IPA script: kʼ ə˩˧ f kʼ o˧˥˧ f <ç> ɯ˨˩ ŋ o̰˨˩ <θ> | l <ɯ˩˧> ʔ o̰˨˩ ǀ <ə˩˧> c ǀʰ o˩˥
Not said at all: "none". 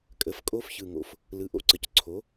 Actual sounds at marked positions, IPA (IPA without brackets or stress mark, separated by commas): ç, f, ɯ˩˧, ə˩˧